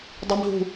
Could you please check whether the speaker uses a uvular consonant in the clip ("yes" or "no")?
no